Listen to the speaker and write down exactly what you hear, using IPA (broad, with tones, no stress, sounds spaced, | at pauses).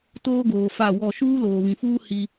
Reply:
t oː˦ ɡ oː˨ f a˦˨ w ɔ˦˨ ʃ uː˦ l oː˨ β ĩ˨ f uː˦ h i˦